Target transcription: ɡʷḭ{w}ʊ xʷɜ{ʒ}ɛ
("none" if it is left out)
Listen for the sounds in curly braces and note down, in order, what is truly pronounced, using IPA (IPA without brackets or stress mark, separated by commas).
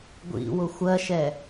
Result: w, ʃ